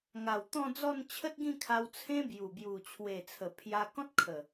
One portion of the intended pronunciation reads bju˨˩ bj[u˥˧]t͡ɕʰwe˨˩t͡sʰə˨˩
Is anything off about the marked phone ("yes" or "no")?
yes